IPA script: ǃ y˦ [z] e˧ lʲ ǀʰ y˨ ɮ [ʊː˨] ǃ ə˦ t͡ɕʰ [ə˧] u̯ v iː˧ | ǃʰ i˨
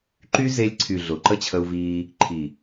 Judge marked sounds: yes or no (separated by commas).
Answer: yes, no, yes